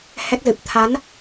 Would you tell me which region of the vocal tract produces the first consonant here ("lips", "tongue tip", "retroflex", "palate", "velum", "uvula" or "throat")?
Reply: throat